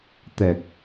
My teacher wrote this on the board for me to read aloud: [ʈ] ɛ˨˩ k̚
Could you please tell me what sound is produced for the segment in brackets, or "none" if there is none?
t̪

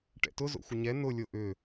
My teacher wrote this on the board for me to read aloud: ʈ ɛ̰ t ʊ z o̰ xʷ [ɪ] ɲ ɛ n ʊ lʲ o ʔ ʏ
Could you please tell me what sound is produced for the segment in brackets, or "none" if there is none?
ɪ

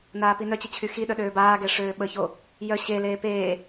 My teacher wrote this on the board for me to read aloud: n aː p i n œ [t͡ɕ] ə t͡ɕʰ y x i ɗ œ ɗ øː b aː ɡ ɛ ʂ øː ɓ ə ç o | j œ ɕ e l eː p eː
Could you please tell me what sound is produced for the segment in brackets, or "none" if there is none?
t͡ɕ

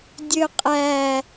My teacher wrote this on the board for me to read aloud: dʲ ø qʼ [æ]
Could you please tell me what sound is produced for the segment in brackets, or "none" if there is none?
æ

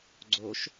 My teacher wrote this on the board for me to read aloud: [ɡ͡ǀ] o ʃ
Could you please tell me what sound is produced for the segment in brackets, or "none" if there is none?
ɡ͡ǀ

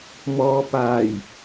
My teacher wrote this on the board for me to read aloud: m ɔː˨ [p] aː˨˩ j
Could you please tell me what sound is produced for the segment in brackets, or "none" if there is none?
p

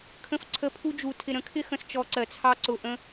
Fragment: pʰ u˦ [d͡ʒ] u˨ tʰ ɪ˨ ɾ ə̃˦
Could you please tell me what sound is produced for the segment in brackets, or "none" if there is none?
d͡ʒ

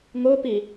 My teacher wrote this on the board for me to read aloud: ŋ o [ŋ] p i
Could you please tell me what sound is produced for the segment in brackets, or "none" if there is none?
none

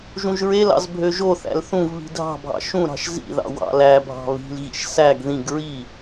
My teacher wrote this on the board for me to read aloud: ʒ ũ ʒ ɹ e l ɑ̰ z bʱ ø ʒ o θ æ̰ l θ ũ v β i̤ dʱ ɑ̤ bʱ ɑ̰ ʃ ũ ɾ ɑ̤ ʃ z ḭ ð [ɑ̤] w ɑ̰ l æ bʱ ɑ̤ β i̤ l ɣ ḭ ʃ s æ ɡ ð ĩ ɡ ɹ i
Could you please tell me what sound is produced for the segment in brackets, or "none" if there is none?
ɑ̰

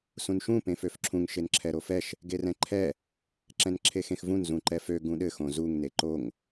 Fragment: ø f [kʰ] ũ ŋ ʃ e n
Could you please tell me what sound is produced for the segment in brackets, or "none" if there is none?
ǁʰ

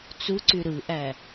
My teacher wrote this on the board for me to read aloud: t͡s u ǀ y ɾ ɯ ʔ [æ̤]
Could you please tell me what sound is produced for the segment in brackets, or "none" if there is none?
æ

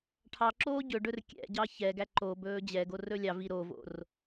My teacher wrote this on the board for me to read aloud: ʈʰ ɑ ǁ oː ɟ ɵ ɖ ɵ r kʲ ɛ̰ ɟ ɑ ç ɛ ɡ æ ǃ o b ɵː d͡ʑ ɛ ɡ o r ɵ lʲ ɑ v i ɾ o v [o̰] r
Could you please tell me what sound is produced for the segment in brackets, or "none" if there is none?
o̰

